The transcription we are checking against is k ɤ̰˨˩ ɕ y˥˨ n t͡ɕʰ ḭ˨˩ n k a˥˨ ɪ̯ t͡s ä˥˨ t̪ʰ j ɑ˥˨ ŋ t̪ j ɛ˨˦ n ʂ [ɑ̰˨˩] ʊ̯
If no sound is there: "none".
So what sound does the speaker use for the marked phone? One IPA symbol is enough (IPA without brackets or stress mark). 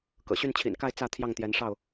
ɑ˥˨